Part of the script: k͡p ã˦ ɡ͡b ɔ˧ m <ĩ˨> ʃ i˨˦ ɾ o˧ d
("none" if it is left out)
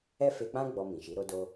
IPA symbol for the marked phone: ĩ˨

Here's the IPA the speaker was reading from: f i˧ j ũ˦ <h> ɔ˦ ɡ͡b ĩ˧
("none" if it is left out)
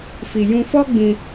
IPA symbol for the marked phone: f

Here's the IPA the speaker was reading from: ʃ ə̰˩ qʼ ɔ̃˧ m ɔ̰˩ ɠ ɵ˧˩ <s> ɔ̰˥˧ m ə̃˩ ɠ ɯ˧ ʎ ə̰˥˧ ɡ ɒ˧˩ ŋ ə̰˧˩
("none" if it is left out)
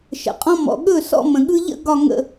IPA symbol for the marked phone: s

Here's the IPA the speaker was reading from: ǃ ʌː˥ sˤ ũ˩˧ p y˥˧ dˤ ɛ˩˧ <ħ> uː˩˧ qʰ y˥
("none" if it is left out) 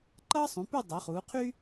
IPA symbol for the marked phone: χ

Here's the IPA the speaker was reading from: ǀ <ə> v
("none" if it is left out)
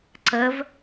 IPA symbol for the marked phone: ə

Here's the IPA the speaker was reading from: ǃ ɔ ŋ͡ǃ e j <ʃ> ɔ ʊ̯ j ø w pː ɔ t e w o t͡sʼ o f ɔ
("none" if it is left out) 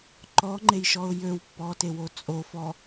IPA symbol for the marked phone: ʃ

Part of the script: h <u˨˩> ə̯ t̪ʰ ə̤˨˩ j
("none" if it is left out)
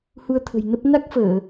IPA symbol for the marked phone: u˧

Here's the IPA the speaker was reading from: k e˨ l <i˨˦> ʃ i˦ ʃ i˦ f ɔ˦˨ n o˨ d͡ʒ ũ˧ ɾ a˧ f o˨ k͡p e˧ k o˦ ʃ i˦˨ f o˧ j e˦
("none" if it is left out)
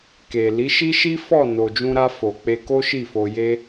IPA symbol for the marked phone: i˨˦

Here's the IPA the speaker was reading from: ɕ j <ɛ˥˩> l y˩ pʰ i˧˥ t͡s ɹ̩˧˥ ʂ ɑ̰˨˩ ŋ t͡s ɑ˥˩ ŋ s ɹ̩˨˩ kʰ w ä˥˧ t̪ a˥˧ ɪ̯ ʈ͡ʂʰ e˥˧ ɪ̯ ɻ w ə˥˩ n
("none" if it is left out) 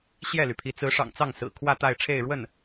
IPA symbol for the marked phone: ɛ˥˩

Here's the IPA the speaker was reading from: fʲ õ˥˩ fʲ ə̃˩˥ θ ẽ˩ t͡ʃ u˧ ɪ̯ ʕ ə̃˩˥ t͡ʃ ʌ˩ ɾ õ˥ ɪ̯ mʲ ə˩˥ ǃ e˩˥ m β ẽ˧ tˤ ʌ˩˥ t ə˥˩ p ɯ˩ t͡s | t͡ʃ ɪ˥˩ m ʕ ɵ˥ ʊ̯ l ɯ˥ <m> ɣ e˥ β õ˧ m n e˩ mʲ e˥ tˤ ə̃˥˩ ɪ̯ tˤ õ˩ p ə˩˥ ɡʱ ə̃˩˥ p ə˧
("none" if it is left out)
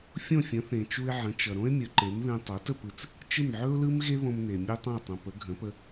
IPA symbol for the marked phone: m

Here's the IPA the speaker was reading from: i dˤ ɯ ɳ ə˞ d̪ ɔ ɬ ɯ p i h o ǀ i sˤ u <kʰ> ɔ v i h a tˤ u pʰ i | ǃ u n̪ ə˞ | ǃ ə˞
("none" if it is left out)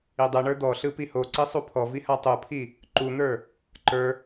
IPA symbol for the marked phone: pʰ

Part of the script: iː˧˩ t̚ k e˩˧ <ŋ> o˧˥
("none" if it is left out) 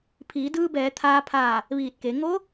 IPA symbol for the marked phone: ŋ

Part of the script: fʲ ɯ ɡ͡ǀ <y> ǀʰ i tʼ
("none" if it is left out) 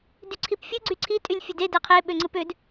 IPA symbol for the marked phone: y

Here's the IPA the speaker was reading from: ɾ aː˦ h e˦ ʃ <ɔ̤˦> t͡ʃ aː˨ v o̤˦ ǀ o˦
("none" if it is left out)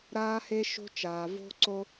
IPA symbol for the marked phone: o̤˦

